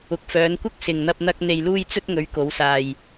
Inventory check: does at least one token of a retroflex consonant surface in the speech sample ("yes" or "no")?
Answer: no